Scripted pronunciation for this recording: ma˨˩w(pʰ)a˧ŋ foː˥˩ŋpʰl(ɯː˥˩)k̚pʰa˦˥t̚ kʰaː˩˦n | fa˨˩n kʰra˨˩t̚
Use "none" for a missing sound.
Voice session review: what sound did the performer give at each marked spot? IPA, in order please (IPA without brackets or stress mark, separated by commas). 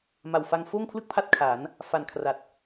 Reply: f, ɯ˥˩